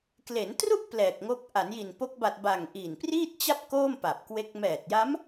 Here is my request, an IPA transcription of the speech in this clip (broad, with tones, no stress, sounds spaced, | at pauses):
k l e˩˦ n t r u˥˩ ʔ p l ɛː˨˩ k̚ ŋ o˦˥ k̚ ʔ a˩˦ n j i˨˩ n p o˦˥ k̚ b a˨˩ t̚ b a˨˩ ŋ ʔ i˨˩ n p r iː˥˩ t̚ t͡ɕ a˥˩ p̚ k oː˥˩ m p a˨˩ p̚ k w e˦˥ k̚ m ɛː˨˩ t̚ j a˦˥ m